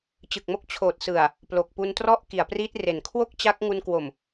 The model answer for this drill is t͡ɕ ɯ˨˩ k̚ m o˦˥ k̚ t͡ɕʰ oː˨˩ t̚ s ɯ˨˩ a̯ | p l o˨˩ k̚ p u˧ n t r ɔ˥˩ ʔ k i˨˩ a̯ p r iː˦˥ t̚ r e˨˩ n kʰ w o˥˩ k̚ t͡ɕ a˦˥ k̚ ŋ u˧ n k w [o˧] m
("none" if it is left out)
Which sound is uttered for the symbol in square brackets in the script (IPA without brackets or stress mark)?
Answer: o˨˩